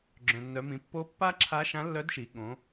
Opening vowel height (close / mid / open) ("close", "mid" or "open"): mid